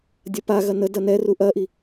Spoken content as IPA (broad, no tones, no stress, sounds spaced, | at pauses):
dʲ ɐ p a ɣ ɐ n ə d ɐ n ɛ r u ʔ ɐ ʔ i